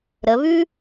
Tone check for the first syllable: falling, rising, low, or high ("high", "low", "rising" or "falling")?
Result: rising